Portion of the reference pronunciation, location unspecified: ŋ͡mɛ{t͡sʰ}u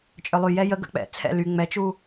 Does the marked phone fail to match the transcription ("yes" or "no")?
yes